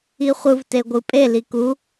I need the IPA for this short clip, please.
i χʷ ɯ v t e ɡʷ ɯ pʼ e l i k u

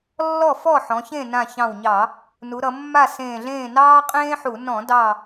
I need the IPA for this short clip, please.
lː ɔ˥˨ f ɔ˥˨ ħ ɔ̃˩˧ ç ẽ˥˨ n ã˧˩ ç ɑ̃˧˩ w ɲ ɑ˧˩˧ | n u˩˧ ɾ ʌ˩˧ mː a˥˨ s ẽː˧˩ ɮ ẽː˥˨ n ɑː˥ qʼ ẽː˥ ħ u˧˩˧ n ɔ̃˧˩˧ d ɑ˧˩

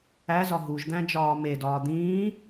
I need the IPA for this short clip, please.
æ z ɒ ɦ u ʒ d̪ æ̃ d͡ʒ ɒː m e d ɒː d̪ ĩː

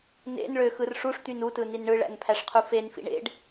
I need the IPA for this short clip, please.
n ḛ n ɭ ø x ɯ r ʂ u ʂ t̪ y n u t ɯ n i n ɳ ɯ ɭ æ̰ n pʰ æ ʂ qʰ u f e n f ḭ ɳ ḛ ɖ

